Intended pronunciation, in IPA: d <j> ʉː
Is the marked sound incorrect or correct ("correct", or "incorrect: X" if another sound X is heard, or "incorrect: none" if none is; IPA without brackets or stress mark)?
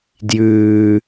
correct